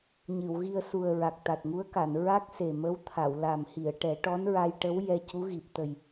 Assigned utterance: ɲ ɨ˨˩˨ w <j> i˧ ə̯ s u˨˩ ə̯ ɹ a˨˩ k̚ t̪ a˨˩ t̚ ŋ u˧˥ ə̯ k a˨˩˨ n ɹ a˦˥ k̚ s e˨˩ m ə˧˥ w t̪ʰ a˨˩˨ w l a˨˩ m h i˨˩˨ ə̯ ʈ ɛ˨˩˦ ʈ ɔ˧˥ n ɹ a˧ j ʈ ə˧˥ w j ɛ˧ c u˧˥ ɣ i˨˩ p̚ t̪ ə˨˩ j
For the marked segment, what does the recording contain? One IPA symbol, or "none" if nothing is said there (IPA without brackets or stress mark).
ɣ